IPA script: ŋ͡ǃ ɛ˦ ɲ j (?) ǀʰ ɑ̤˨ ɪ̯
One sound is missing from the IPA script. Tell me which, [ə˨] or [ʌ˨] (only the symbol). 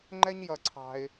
ʌ˨